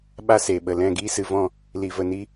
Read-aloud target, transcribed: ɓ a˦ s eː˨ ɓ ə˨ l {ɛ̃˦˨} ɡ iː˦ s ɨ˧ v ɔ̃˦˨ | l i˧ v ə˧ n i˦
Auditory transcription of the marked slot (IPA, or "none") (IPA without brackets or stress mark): ɛ̃˦˨